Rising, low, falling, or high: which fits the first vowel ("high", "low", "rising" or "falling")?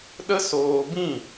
high